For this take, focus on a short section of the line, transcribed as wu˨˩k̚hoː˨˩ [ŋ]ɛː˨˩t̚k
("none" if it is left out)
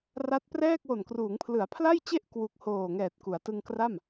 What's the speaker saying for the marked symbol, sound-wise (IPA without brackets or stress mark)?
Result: ŋ